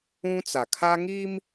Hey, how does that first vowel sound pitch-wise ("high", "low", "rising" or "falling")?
high